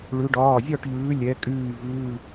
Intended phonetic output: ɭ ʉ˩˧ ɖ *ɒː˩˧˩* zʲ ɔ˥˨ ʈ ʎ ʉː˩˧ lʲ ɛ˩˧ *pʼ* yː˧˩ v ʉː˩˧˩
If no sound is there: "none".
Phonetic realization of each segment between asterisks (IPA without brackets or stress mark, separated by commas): ɒː˩˧˩, kʼ